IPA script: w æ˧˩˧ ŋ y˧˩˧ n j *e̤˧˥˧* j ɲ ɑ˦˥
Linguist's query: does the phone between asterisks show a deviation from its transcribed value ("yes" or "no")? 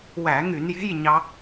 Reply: no